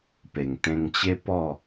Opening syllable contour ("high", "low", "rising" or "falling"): low